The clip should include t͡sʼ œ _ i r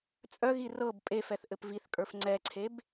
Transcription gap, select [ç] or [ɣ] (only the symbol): ɣ